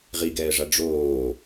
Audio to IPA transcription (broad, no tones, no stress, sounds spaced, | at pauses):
ʁ i ɡ ɛː ʐ a ɖ͡ʐ oː